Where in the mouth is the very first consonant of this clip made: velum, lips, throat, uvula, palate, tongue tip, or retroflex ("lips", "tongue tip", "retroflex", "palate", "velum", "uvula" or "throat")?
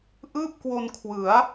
throat